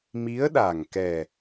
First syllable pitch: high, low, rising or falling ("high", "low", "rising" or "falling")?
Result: rising